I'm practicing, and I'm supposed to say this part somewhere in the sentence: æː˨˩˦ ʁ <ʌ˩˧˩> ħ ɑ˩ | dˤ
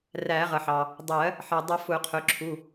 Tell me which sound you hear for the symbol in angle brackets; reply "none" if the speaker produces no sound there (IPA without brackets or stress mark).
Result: ʌ˩